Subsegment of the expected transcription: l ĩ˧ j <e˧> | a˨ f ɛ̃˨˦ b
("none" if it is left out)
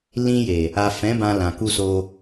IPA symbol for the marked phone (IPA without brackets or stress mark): e˨